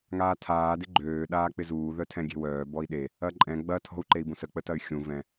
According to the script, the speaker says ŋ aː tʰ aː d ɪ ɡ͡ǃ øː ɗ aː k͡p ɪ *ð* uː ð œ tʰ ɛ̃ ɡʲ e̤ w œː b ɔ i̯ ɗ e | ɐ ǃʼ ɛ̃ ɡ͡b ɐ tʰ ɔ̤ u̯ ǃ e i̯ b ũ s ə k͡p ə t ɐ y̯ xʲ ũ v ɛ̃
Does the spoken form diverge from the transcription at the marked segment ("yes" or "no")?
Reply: yes